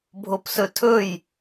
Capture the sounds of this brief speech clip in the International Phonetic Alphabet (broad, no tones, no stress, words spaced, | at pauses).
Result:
bʱopsɵtʰɵj